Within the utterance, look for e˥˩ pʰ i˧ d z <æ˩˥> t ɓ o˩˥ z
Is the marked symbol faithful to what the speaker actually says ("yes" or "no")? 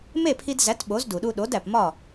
yes